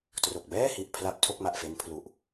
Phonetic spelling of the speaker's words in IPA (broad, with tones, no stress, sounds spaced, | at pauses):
t r o˨˩ k̚ b ɛː˥˩ h i˨˩ ʔ pʰ l a˥˩ p̚ tʰ o˥˩ k̚ m a˨˩ ʔ f e˦˥ n pʰ l u˨˩ ʔ